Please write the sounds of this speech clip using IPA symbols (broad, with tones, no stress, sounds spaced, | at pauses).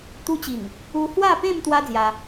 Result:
t̪ u˧ t͡ɕ i˨˩ ŋ | u˧ h w a˥˧ p ẽ˥˧ m t̪ w a˦ d͡z j a˧